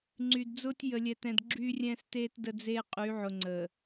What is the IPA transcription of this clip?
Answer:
ŋ͡ǀ y˨ d d͡z ʊː˦ tʲ j ə˨ lʲ ɛ˨ t ɛ̃˨ d ɡ͡ǁ yː˦ rʲ ɛ̃ː˦ s t eː˦ t d ə˦ d͡z eː˦ qʼ y˨˦ ʕ ʊ˨ ŋ͡ǀ ə˨

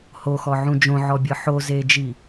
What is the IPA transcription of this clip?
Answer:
h o x ɔ ʕ ũ d͡ʒ õ ʕ ɔ bʲ ɤ ħ o z e d͡ʒ i

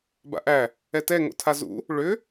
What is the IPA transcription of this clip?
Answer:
b a̰ ʔ æ | ɛ t ɛ ŋ o̰ tʰ a z ṵ | ɭ ʏ

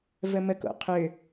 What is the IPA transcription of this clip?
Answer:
v ə m ə k o̰ qʰ ʏ

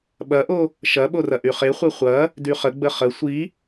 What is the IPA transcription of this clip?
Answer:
ɓ ɐ ʔ o | ʃ ɐ ɓ o r ɐ ʔ y χ e χʷ e χʷ ɐ | d y χ ə ɡ͡b ə χ ə sʷ i

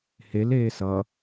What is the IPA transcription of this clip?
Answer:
h e l eː s ʌ

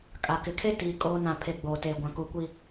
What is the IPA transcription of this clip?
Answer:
kʼ a˨ k ɪ˨ kʰ e˦ t iː˨ kʼ oː˦ n ã˦˨ pʰ e˦˨ ɡ͡b oː˨ t eː˨ ɡʷ ã˨ k u˨ kʷ i˨

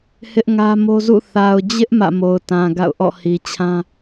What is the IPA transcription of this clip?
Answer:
h ɪ˦ ʔ ŋ ä˦ m o˦ z ṵ˦˨ θ a˨ ʊ̯ d͡ʑ ɪ˦ ʔ m ä̰˦˨ m o˨ ʊ̯ t ã˨ ɡ a̰˦˨ ʊ̯ ʔ ɔ̰˦˨ h i˨ t͡ɕʰ ã˦

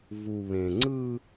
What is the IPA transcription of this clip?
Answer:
v u˨ β ẽ˨ ŋ͡ǀ ɯ˦

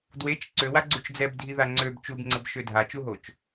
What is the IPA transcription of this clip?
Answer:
d w e t͡ʃ ǀ ø w a ɡ͡ǀ u t͡ʃ d͡z ɛ b dʱ i ð a ŋ͡ǀ ø b t͡ʃ u b ŋ͡ǀ ə b ʃ ø dʱ a t͡ʃ u ɦ o t͡ʃ

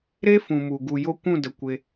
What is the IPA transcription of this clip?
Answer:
ɾ e˦ f ũ˨ m u˨ ɡ u˨ j o˧ kʷ ũ˦˨ d ə˨ kʷ e˧

